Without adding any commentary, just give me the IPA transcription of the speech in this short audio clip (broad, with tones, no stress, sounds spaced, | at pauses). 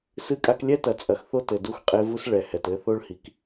s ɨ˦ kʼ a˦ k lʲ ɛ˦ t ɐ˨ t͡sʼ ɐ˨ x θ o˦ t ɘ˨ d u˦ x qʼ e˦ v u˦ s ɭ ɛ˨ h ɛ˨ t ɘ˦ θ o˦ ɭ h i˨ k